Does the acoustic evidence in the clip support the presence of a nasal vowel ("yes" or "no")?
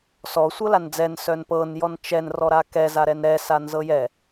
no